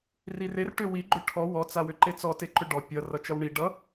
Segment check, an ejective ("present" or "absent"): absent